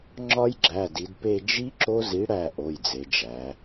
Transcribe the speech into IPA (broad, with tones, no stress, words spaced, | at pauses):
ŋ͡ǁɒ˦˥j ɡ͡ǁæ˩˧˩di˩˧dpe˦˨ d͡ʒi˦˥ ǁo˦˥zi˨˥ɽæ˦˨ ʔo˩˧˩jd͡ze˩˧d͡ʒæ˩˧